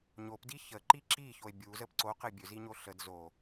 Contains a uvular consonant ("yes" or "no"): yes